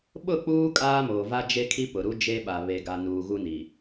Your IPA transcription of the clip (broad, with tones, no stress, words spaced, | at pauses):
ɓʊ˦˨k͡puː˦ kʼaː˦moː˨va˦ d͡ʒe˦kʰi˦pʊ˨ɾu˦ d͡ʒe˦ɓa˨ βe˨ɡa˨nuː˨ ɣu˦ni˨